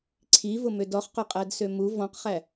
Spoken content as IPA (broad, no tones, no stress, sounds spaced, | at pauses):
ǀʰ i v ʊ m ø d ɔ χ q ʊ qʼ æ d s ø m u v ɔ̃ q χ æ